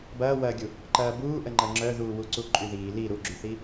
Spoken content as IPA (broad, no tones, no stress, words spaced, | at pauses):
bɐːwɐːɡʲu | ǃɐːbuːʔə ŋ͡ǃɐŋ͡ǁœðuː wuǀuǃʼyðiː li ɾuɡ͡ǁyθi